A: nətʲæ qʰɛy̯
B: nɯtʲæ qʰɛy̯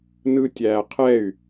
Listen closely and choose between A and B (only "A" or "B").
B